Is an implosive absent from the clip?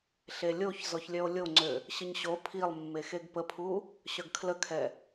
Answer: yes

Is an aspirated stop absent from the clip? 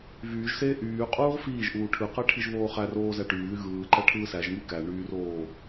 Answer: no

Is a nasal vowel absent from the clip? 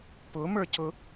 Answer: yes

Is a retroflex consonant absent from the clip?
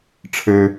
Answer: no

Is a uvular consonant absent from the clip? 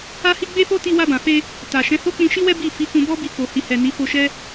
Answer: yes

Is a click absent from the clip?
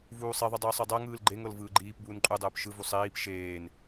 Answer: no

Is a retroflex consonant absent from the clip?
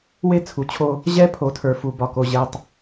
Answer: yes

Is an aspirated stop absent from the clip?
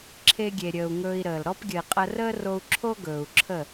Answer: no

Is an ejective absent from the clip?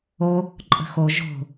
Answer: no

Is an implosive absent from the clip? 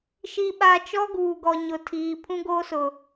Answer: no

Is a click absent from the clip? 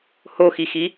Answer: yes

